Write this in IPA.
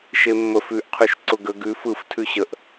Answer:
ʃ e mː ə f ʉ ʔ qʰ ʉ ʃ ǀ ʊ ɡ ə ɡ ʉ f ɯ f tʰ ʉ ɕ ə ʔ

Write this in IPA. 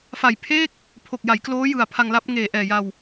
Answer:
f a˨˩ j pʰ eː˥˩ k̚ | pʰ o˨˩ k̚ j a˩˦ j k l oː˦˥ j ɯ˨˩ a̯ pʰ a˧ ŋ l a˦˥ p̚ ŋ eː˨˩ ʔ ɛː˨˩ j a˧ w

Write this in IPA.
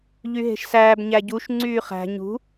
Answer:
ʎ y ɦ e̤ ʃ s æː b ɲ æ ɟ u ʃ ŋ͡ǀ yː χ æ̤ ɲ ṳ

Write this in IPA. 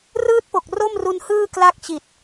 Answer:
r ɯː˥˩ t̚ p o˨˩ k̚ r o˥˩ m r u˧ n h ɯː˥˩ k l aː˥˩ k̚ t͡ɕ i˨˩ t̚

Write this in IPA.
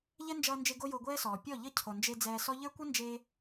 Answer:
ʎ ɛ˦ n d͡ʒ ʌː˧ n d͡ʒ e˧ ɡ o˦ j o˧ ɡʷ ɛː˦ s ɔː˨ pʲ ɔ˦˨ ʎ ʌ˦ cʰ o˨ n d͡ʒ e˧ d͡z ɛː˧ s ɔ˦ ʎ ə˞˦ kʷ ʌ˦ n d͡ʒ eː˧

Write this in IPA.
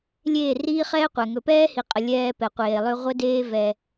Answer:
lʲ eː˦˨ r iː˦ χ ɛː˦ qʷ ɛ˨ ŋ ɵ˨ p ɛː˦ h i˨ qʼ ə˨ lʲ ɛː˦ p ɛ˨ qʷ eː˨ lˠ ʏ˦ ʁʷ ə˦ d eː˦ v ɛ˦

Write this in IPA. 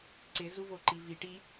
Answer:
ǀ ɪ z u v o ǃ i v i ʈ i

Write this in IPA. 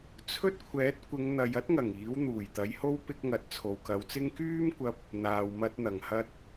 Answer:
t͡sʰ ɵ˥ t̚ kʷʰ ɛː˨˥ t̚ kʷ ɪ˨˧ ŋ n̪ ɐ˨ j ɐ˥ t̚ ŋ ɐ˨˩ ŋ iː˨˥ w n̪ uː˨˩ j t̪ ɐ˨˥ j h o˥ w p ɪ˧ k̚ ŋ ɐ˨ t̚ t͡sʰ o˨ w k ɐ˨˧ w t͡s ɪ˥ ŋ k yː˥ m kʷ ɐ˧ p̚ | n̪ aː˨ w m ɐ˧ t̚ n̪ ɐ˨˩ ŋ h ɐ˧ t̚

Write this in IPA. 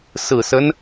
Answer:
s ɹ̩˨˩ s ə˦ n

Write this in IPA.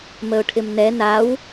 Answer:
m ə ʊ̯ ʈʰ ɪ m n ɛ n a w

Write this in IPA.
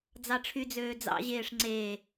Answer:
d͡z ɑ ʈ͡ʂʰ y d͡z øː d͡z ɑ̰ ʑ eː ʂ ŋ͡ǀ e

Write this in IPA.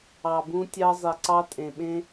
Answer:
ɑ˨ b ũ˧ tʲ ɑ˧ zˤ e˨ ǀ ɑ˧ tʼ ẽ˨ ɓ ẽ˧

